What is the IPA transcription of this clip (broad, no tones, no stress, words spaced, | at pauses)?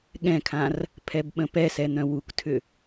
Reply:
ɠɛ̃kʰãr | pʰɛbɓə̃pɛsɛ n̪œ̃wuktʰʏ